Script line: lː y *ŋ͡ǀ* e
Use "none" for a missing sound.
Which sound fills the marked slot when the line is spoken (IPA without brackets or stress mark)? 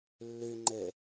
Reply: ŋ͡ǃ